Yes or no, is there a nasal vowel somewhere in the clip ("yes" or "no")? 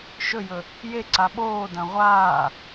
yes